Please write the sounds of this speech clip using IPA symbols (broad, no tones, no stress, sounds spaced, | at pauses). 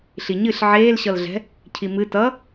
ɬ i ɲ ɨ ɬ ʕ eː l ɕ ʌ l ɮ ɛ̤ | cʰ i m ɨ t ʌ